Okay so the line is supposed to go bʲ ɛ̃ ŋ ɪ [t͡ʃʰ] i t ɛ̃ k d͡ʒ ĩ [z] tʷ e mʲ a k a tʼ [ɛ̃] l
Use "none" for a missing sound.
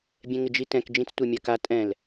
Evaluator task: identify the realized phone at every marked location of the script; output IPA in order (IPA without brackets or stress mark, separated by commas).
d͡ʒ, t͡s, ɛ̃